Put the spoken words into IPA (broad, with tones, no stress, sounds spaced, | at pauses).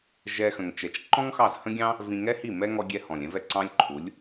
ʒ ɛ˦ x ə̃˧ ŋ t͡ʃ ɛ˧ t͡ʃ ǃ ɔ̃˦ ŋ x ɑ˦˨ z h ə̃˦ ɡʲ ɑ̃˦ | v ĩ˧ ŋ ɛ˦ h i˦˨ m ɛ˦ ŋ ɔ˧ ɡʲ ɛ˧ h ɔ̃˨ lʲ ɛ̃˧ v ɛ˧ ǀ ɑ̃˦ lʲ ǃʰ u˨˦ lʲ